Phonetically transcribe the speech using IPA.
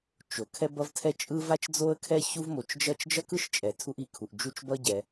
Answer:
t͡ʃ o˩ kʰ ɛ˥ b ʌ˥ v tʰ ɛ˥ t͡ʃʼ ɯ˥ v a˥ t͡ʃ d͡z o˥ ə̯ kʰ ɛ˥ ç u˥ v m o˩ t͡ʃ d͡ʒ ʌ˥ t͡ʃ d͡ʒ ʌ˥ k ɯ˥ ʃ t͡ʃʼ ɛ˩ tʰ u˥ ʔ i˩ kʰ u˩ ʔ d͡ʒ u˥ t͡ʃ b ʌ˥ ɟ ɛ˩

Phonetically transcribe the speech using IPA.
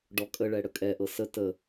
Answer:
ɖ ɔ kʼ ə ɭ ɛ ɽ ə kʼ ɛ ʔ ɤ s ə t ə

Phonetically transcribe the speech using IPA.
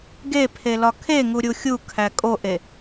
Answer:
ɡ e pʰ e l ɒ kʰ e ŋ u ɾʲ u xʲ u kʰ æ kʼ o ʔ e

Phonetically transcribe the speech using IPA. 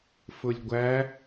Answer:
f ʊ lʲ ɡʷ æ

